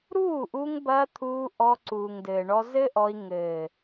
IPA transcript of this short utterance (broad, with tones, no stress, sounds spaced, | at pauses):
ɾ uː˦˨ ʔ u˧ ŋ b ɐː˧ t̪ʰ uː˧ ʔ ɔ˧ ǀ uː˨ ŋ d ɘː˨ ɳ ɔ˧ z ɘ˦ ʔ ɔ˧ i̯ ŋ ɘː˨